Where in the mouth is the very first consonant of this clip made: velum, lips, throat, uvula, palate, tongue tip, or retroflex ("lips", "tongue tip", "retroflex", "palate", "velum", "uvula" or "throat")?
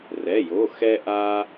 tongue tip